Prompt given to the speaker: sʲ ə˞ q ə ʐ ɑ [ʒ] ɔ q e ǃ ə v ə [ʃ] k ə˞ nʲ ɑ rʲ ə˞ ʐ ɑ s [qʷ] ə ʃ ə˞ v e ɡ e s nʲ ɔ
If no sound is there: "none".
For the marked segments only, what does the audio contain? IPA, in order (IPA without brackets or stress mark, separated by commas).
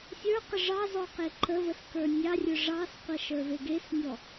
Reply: z, s, qʷ